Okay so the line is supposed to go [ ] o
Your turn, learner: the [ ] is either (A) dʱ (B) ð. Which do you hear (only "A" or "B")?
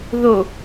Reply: B